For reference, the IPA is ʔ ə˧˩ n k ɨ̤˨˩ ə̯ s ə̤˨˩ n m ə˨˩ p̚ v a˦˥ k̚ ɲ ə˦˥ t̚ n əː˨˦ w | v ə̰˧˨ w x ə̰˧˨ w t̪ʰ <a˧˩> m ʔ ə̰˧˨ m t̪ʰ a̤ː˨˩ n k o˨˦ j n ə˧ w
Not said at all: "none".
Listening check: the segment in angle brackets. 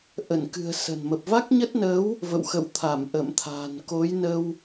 a˧˩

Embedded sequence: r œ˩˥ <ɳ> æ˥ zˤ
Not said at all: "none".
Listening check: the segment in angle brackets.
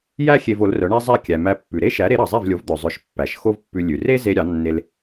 ɳ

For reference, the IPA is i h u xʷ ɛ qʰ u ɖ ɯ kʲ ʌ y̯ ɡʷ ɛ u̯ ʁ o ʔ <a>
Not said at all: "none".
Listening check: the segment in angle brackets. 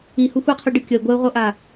a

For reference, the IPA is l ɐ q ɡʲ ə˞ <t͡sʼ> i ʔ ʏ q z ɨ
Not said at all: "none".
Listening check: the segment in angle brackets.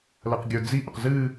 d͡z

